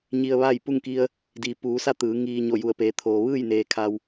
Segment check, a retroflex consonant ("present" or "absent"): absent